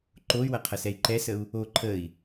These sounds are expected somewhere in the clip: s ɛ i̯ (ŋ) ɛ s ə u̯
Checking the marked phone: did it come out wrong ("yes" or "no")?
yes